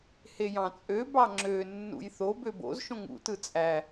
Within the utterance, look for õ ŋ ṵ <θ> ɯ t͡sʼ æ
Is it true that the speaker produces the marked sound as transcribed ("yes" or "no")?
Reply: no